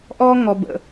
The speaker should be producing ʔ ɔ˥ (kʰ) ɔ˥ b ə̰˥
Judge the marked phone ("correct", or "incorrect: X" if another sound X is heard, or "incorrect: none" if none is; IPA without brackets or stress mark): incorrect: ŋ